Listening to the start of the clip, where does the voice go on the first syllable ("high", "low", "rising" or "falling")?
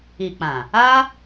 low